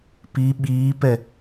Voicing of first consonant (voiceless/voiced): voiceless